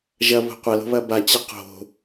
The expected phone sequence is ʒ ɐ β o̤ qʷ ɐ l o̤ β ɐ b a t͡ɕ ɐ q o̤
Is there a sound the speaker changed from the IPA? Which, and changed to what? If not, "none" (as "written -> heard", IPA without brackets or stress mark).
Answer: none